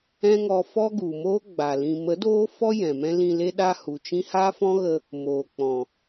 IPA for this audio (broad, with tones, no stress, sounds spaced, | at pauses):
ɛ̃˦ ŋ ɔ˧ f ɔ˦ ɡ u˨ m oː˦ ɡ͡b a˨ l ĩ˨ m ə˨˦ d oː˦ f ɔ˦ j ɛ̃˨ m ɛ̃˦ l ĩ˧ l e˦ ɗ a˦ h u˨ t͡ʃ ĩ˦ h a˦ f ɔ̃˦ ɣ ə˧ | m oː˨ k͡p ɔ̃˨